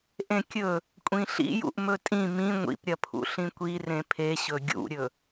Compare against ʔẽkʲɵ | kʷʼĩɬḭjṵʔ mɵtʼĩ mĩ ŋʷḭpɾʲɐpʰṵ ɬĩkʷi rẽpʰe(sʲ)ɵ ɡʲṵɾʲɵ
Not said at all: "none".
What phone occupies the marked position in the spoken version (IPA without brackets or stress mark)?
ɕ